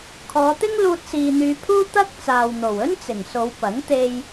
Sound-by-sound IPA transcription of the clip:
kʰ ɔː˨˧ t̪ ɪ˥ ŋ l uː˧ t̚ s iː˨ n̪ yː˨˧ pʰ uː˥ t̪ ɐ˥ k̚ t͡s aː˨ w n̪ o˨˩ w ɵ˥ n t͡s ɪ˨˩ ŋ s o˨˧ w p ɐ˨˥ ŋ t̪ e˧ j

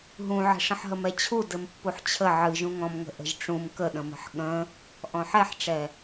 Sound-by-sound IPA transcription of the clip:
ɦ ũ ʕ ə̤ ʂ ə̃ ħ ɦ ə m ɛ t͡ɕʰ u d ɘ m pː u ħ t͡ɕʰ ə ʕ ɨ ʒ ũ ŋ ɔ̃ m ŋ ə̤ ʔ ə̤ ʒ ʈ͡ʂ ũ m k ə ɗ ə̃ m ə̤ ħ ɠ ə̃ | ʔ ɔ̃ ħ ɛ ħ ʈ͡ʂ ɛ

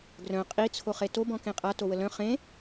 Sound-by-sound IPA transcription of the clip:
ɡ r œ̃ qʼ i t͡sʰ o χ e t o b ɔ̃ k ẽ qʼ a t o w ə l œ̃ χ ẽ

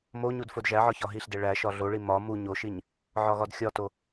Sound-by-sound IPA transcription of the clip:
m o ɲ u d f o d ʒ æ ʕ ɒ ç ɒ ɦ i ɬ d e ɭ æ ʃ ɒ ɮ o ɭ i m ɒ m u ɲ o ʃ i ɲ | ʕ ɒ ɣ ɒ d xʲ ɒ t o

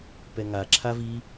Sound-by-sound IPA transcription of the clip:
p ɛ ŋ a ǁʰ a v i

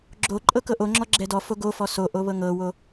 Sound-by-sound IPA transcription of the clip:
ɡ͡ǁ o ǃʼ ɤ k ɤ ʔ o ŋ͡ǁ ɔ ɡ͡ǁ ɛ d ɔ f o ɡ o f ɔ s o ʔ o β ɤ ŋ ɤ w o

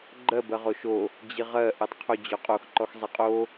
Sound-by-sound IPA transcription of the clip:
ɡ͡ǃ ɜ b ɜ ʁ o ʃ o | d͡ʑ i ʁ ɜ ʔ ɜ tˤ qʰ o d͡ʑ ɔ qʼ o x ǃ ɔ x zˤ i qʼ o

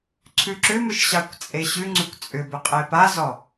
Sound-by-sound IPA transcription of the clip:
ǀʰ ʉ ǁ ʏ m ʏ ʃ ɕ ɑ kʷ t͡sʼ e ɕ ʉ ŋ͡ǀ ʉ kʷ t͡sʼ ʏ b ʏ qʼ e p a z ɔ

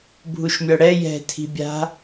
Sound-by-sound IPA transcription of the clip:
bʱ u ʃ mʲ ɔ ɽ ɛ j ɛ̤ tʰ i̤ bʲ a̤

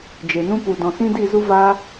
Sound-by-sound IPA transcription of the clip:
d͡ʒ e˨ n ũ˦ p u˨ d ɔ̃˨ s ĩ˦ d i˦˨ z u˦ v aː˦

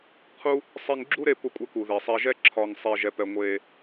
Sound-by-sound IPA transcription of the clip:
qʰ u˦ | sˤ e˧ ŋ ɡ͡ǁ u˦ ɾ e˧ p ʊ˧ kʷʼ ɛ˧ k u˨ ð ɛ˨ sˤ ɛ˧ ʒ ɛ˦ ǁʰ ɒ˧ ŋ sˤ e˧ ʒ ɛ˧ p ɛ˧ ŋʷ e˧

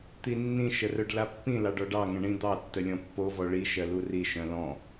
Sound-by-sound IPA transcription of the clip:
t̪ i nː ĩ ʃ ə r œ ɖ l a pː ĩ l ɑ ɖ ɔ ɖ ɑ ŋ ə̃ ɳ ĩ d̪ ɑ tː ə lʲ ɔ̃ pː o v ɔ ɭ i ʃ ɜ l u r i ʃ œ̃ l ɔ̃

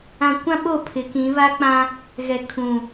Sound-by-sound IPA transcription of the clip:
ã˨ kʷ ã˦ ɓ o˦˨ pʰ ɪ˨˦ k ĩ˨˦ β a˦ k͡p ã˦ | ɣ ɛ˨ kʰ ũ˨

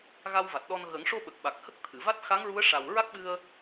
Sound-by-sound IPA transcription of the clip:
ɣ a˧ w v a˨˩ t̚ ɗ ɔ˧ n ɣ ə˨˩˦ ŋ ʂ o˧ ɓ ə˨˩ k̚ ɓ a˨˩ k̚ h ə˦˥ k̚ t̪ʰ ɨ˨˩˨ v a˦˥ t̚ x a˧˥ ŋ ɹ u˧˥ ə̯ ʂ a˨˩ w ɹ a˦˥ k̚ ɓ ɨ˧ ə̯

